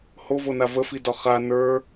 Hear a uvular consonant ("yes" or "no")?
yes